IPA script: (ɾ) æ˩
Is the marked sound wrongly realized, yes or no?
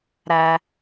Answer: no